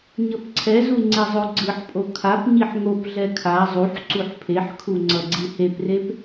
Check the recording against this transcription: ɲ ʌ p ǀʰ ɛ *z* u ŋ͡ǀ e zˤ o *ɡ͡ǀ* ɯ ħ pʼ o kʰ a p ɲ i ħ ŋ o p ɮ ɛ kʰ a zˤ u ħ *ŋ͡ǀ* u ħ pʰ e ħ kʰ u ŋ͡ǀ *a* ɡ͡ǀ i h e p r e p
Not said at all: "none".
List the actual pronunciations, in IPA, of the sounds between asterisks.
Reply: z, ɡ͡ǀ, ǀ, ʌ

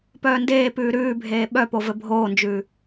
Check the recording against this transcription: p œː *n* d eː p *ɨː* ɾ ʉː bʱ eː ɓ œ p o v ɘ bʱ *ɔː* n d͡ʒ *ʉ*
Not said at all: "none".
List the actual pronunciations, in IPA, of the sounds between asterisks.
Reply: n, ʉː, oː, ʉ

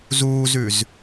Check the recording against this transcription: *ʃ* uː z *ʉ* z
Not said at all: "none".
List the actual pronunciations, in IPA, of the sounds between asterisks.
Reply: z, ʉ

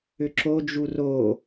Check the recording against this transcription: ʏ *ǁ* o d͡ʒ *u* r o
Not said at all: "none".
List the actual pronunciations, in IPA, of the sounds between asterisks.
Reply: ǁ, u

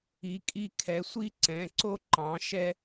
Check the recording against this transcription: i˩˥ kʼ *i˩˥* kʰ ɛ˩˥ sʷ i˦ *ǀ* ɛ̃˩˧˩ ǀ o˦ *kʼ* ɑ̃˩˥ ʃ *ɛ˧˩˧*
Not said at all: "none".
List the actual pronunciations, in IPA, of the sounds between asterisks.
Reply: i˦, ǀ, ǃ, ɛ˦

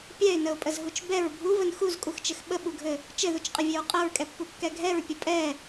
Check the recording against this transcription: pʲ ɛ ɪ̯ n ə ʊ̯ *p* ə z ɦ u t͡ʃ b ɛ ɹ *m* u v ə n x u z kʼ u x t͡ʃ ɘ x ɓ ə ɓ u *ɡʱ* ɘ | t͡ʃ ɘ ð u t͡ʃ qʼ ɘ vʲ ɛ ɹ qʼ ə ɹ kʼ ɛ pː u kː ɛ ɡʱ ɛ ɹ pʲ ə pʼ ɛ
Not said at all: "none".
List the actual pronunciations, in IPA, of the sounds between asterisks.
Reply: pʼ, bʱ, ɡʱ

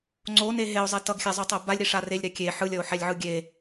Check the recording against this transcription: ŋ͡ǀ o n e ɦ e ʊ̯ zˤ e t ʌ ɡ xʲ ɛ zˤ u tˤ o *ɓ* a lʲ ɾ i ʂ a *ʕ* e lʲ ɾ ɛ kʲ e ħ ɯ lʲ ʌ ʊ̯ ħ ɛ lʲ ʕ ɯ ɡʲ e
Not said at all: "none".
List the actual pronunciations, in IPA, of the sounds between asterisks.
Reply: b, r

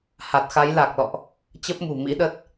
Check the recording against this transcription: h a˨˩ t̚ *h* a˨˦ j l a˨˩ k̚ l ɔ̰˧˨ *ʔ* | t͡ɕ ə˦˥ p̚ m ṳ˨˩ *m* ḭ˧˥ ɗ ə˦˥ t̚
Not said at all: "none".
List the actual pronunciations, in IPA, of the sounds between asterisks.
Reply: x, ʔ, m

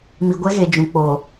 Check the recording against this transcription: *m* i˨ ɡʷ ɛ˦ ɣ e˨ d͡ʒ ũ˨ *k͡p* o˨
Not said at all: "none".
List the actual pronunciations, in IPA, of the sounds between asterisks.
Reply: m, k͡p

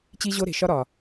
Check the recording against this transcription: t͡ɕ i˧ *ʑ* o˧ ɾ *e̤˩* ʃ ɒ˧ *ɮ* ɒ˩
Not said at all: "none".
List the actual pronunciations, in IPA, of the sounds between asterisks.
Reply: ʑ, e̤˩, ɾ

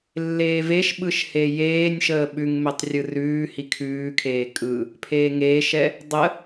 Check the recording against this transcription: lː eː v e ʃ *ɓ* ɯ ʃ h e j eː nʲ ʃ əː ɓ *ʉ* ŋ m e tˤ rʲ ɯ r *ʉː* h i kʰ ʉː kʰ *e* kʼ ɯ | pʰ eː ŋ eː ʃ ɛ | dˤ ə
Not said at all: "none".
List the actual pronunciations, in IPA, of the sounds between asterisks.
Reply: ɓ, ʉ, ʉː, eː

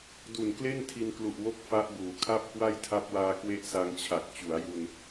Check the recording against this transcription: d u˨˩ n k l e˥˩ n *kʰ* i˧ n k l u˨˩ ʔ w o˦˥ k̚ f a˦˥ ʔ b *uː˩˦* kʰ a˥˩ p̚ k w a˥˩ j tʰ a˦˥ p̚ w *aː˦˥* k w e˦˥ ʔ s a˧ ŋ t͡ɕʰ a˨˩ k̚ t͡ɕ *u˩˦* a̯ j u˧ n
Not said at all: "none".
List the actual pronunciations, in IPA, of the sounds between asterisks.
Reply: tʰ, uː˩˦, aː˧, u˩˦

